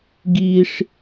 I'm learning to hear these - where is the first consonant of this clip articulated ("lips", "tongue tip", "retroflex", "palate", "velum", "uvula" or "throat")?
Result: velum